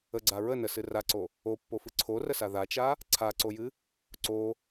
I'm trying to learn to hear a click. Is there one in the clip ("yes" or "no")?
yes